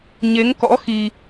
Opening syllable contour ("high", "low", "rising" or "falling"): rising